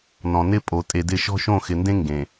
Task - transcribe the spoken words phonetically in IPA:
n ɔ̃˨ n ɪ˦ pʼ o˨ tʼ e˨ d ɪ˦˨ ʃ ɔ̤˦ ʃ õ˦˨ x ɪ˨ n d ẽ˦ ŋ ɡ ẽ˨

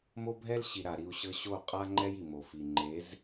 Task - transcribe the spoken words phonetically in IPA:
m o˦ bʱ ɛ˦ l ɕ i˨ ɾ a˨ ɾ i˦˨ u̯ ɕ ɤ˦ ɕ o˦˨ qʼ a˦ ŋ͡ǃ ɛ˦ j i˨ m o˨ f i˨ ŋ͡ǃ e˨˦ z

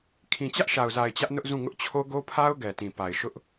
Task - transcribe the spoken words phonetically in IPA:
kʰ ĩ˨ t͡ɕ ä˦ ʔ ʃ a˨ ʊ̯ z a˨ ɪ̯ t͡ɕ ä˦ ʔ n ʊ˦ ʔ z ũ˦˨ ŋ ʊ˦ ʔ t͡ɕʰ o˦ ɡ o˦ pʰ a˦ ʊ̯ ɡ ɛ˨ t ĩ˨ p a˨ ɪ̯ ʃ ʊ˦ ʔ

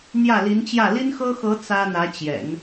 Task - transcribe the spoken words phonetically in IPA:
n̪ j ä˥˩ l i˧˥ n t͡ɕ j ä˥˩ l i˥ n x ɤ˥ x ɤ˧˥ t͡s ä˥ n̪ ä˧˥ t͡ɕ j ɛ̰˨˩˦ n

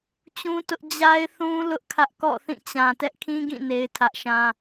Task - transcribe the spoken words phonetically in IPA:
t͡ɕ ũ˦ t ʊ˦ ʔ d͡ʑ a˦ ɪ̯ θ ũ˦ l ʊ˦ ʔ kʰ ä˦ ʔ k ɔ̰˦˨ θ ĩ˦˨ t͡ɕ ã˨ t ɛ˦ ʔ kʰ ĩ˦ ɡ ĩ˦˨ n e˦ ɪ̯ tʰ ä˦ ʔ ʃ ã˦

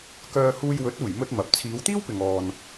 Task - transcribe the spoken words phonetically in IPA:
k œː˧ h uː˧ j w ɵ˨˥ t̚ uː˨˩ j m ɵ˧ t̚ m ɐ˨ p̚ t͡sʰ iː˨˧ w t̪ iː˥ w p ɪ˨ ŋ ɔː˨ n

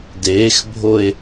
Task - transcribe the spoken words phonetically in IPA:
d eː x bʱ o e̯

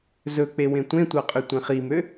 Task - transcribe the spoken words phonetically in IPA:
z ɵ k͡p e w ẽ tʷ ẽ tʷ ɑ qʼ ø tʷ ẽ χ i m ø

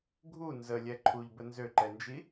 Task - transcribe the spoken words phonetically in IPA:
ɡʱ u n z ə lʲ ɛ ǃʰ u ʎ b ə n z ø ǃ ɛ n d͡ʒ i

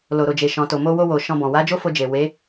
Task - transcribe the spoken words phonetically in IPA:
l o˨ ɾ o˨ d͡ʒ e˨ ʃ ɔ̃˨ t o˨ m o˧ w o˧ w o˧ ʃ ɔ̃˧ b ɔ̃˨ w a˨˦ d͡ʒ o˦ f o˧ d͡ʒ e˨ w e˨˦

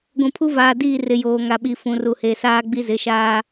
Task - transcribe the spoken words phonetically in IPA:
ɡʷ ũ˨ pʰ u˦ v aː˨ d iː˦˨ r ɪ˨ j oː˨ ŋ a˨ ɓ i˨ f ũ˨ r u˨ h e˨ s aː˦ ɡ͡b i˦ z ɪ˨˦ ʃ aː˦

